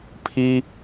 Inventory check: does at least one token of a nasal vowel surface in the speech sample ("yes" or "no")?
no